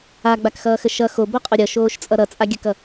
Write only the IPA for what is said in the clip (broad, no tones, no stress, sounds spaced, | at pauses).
a ɡ͡b a k x ʌː x ə ʃ ʌ x o b o qʼ o ɾʲ ʌ ʃ oː ʃ t͡sʼ ʌ ɾ ʌ t͡sʼ a ɡʲ ə k ʌ